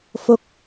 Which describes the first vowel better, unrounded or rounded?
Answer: rounded